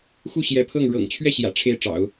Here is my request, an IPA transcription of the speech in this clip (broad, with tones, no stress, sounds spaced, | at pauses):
x u˥˩ ɕ j ɛ˧˥ pʰ ɤ˥˩ ŋ ɻ ɤ̰˨˩ ŋ t͡ɕʰ ɥ ɛ˥˩ ɕ j ä̰˨˩ ʈ͡ʂʰ e˥˩ ɪ̯ ʈ͡ʂ ɑ̰˨˩˦ ʊ̯